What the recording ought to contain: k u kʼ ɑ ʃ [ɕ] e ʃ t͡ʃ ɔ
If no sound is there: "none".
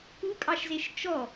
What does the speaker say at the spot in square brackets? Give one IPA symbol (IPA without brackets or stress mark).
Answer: z